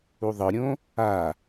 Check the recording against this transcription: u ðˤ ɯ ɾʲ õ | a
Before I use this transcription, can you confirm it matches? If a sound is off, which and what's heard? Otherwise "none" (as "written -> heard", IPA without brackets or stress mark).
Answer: none